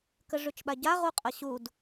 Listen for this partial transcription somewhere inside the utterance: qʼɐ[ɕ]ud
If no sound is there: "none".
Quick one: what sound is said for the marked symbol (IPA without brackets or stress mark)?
ɕ